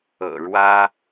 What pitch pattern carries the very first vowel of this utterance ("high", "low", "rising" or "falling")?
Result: low